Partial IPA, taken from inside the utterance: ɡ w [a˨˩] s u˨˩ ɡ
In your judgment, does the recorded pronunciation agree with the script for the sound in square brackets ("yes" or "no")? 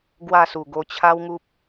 no